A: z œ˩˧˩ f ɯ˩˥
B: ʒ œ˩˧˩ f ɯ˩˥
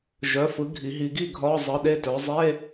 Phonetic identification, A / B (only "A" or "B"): B